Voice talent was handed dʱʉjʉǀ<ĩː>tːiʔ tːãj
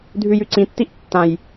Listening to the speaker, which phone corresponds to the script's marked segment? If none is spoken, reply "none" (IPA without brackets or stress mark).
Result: ĩ